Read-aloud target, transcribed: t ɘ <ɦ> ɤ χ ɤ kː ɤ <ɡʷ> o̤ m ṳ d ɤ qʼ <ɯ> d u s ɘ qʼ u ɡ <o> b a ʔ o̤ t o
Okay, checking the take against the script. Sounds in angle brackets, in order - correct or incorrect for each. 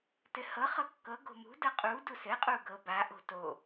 incorrect: h, incorrect: ɡ, incorrect: u, incorrect: ɤ

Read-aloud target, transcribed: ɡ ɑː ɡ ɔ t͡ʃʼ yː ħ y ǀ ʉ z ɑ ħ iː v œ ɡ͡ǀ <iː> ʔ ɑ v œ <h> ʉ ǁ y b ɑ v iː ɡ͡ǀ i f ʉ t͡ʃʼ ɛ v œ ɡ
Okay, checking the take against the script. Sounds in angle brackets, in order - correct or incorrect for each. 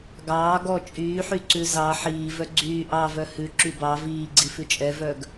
incorrect: yː, correct

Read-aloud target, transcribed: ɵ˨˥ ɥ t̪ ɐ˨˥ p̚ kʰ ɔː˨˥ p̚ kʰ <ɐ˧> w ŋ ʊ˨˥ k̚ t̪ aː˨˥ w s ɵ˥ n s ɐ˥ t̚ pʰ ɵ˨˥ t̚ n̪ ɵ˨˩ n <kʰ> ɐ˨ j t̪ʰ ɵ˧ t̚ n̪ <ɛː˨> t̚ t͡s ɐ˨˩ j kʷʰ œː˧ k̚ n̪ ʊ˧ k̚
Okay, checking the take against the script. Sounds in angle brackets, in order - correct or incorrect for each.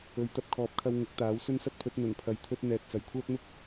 correct, incorrect: pʰ, correct

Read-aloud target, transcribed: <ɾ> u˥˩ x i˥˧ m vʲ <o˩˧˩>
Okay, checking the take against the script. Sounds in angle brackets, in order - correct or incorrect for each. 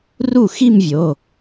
incorrect: r, correct

